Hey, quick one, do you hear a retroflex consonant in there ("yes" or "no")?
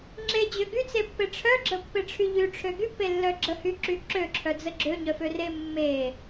yes